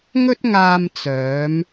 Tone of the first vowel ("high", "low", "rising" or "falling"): high